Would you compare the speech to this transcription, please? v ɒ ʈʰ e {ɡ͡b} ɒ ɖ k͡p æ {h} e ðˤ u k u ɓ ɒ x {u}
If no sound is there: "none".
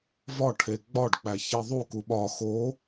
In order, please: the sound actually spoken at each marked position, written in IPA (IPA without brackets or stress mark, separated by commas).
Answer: ɡ͡b, ç, o